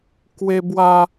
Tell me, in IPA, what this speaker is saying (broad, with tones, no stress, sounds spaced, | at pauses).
k w e˦ b w a˦